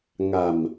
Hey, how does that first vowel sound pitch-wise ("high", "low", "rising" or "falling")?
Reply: low